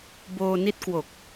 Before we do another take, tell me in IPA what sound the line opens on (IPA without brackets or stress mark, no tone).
b